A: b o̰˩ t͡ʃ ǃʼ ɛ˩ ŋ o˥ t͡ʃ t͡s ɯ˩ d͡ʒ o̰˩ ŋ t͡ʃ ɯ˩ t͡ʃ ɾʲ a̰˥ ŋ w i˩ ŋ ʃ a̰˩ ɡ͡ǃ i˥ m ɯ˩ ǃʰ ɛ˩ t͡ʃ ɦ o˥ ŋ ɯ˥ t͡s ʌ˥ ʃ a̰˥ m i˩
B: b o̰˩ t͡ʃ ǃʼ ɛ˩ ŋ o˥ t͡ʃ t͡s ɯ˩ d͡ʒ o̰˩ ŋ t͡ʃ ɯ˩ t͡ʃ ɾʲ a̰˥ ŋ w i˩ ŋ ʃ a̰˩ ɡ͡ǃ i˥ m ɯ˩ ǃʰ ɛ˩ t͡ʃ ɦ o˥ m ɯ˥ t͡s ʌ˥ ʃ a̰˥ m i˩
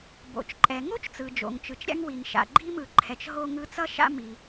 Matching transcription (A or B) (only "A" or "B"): A